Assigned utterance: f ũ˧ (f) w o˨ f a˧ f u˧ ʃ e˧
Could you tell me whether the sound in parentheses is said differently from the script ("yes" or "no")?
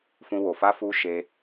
yes